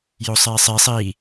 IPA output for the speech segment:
josˤeːsˤi sˤiː

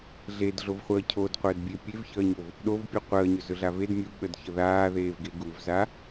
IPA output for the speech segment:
ɮedɮovχʷəː cʰodqʷəːdbʲe pʲevçəːɲov | ɗovpʲu qʷəːɲɵzɵɮa ved mʲuɓədçə ðaːðeːvɡe ɡuvza

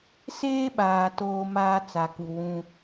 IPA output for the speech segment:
seː˦ɓaː˨ toː˦maː˦ t͡sa˨ku˨wũ˦

